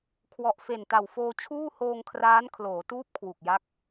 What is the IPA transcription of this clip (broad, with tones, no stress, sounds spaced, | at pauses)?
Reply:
kʰ w ɔ˨˩ ʔ f e˨˩ n t a˨˩ w f oː˧ t͡ɕʰ uː˥˩ h oː˧ ŋ kʰ r aː˦˥ n kʰ l oː˩˦ t uː˦˥ p̚ kʰ w u˨˩ k̚ j a˦˥ k̚